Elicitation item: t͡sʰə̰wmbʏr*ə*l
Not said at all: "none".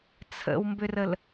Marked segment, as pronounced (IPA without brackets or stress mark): ə